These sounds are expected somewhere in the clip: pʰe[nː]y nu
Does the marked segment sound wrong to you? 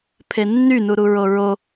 no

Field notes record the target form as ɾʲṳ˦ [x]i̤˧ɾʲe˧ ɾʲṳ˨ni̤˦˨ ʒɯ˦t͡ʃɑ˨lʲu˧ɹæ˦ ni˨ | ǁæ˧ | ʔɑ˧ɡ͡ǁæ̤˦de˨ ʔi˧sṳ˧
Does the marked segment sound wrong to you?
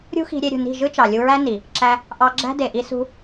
no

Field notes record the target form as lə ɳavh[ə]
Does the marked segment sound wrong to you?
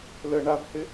yes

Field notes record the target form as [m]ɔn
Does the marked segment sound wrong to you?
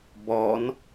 yes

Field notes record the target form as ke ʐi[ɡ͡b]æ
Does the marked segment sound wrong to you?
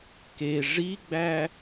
no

